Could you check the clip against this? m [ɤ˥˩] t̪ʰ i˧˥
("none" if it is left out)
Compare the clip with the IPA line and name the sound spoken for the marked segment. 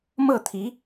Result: ɤ˥˩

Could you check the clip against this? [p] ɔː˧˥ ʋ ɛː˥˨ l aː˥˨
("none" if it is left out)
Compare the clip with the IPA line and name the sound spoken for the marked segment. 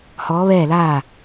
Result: h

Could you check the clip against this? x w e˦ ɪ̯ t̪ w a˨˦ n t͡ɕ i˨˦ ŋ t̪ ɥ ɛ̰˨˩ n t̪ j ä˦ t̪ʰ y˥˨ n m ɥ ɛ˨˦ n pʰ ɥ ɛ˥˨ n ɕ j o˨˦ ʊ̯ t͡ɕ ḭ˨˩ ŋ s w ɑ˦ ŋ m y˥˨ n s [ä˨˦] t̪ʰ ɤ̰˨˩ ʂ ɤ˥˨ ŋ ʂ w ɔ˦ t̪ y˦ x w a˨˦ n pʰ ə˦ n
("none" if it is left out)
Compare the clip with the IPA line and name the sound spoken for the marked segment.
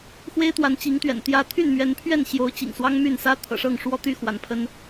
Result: ä˦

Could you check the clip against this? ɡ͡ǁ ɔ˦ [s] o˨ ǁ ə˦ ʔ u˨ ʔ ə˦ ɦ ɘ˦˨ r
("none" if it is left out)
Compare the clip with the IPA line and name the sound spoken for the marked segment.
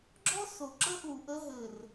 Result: s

